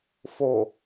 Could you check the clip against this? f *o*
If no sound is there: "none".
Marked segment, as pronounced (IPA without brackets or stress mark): o